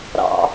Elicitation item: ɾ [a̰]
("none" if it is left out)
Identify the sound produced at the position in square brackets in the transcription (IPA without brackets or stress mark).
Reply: ɑ̰